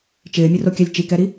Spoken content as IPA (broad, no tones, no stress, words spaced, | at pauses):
t͡ʃɪːmʲʊrokʲalʲ t͡ʃikɛɾi